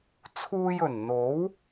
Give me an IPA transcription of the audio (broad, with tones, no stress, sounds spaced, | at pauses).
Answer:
t͡sʰ uː˧ j ɵ˨˩ n n̪ o˨˥ w